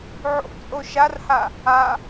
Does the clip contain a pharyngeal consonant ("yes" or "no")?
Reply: yes